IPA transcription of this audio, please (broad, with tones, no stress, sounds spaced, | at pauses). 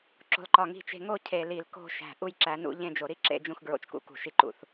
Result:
ǁ o̤˨ l ǃ ɒ˨ ŋ i̤˨ t͡ʃ e̤˨ ŋ o˦˨ cʰ e˨ l i˨ l k o̤˦˨ ʃ æ̤˨ ʔ u˦ j ǁ æ˨˦ n ṵ˦ ʎ ẽ˦ d͡ʒ o˨ ɾ i˦ ǁ ḛ˨ d͡ʒ ũ˨ x ɡ ɹ o̰˦ t͡ʃ k ṵ˦ k ṳ˦˨ ʃ i˦ ǃ ṵ˨ θ